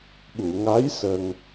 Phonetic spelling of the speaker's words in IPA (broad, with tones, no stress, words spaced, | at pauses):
ɓu˨˩˨ ŋa˧˥j sə˧ŋ